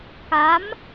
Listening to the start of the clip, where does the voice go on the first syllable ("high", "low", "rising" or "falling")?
rising